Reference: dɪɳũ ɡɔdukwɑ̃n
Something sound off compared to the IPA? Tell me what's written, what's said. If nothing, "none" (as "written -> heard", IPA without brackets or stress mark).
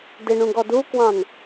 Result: none